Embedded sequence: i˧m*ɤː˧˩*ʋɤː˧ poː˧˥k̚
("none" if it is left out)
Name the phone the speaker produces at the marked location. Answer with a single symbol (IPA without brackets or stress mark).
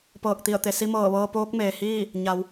ɤː˧˩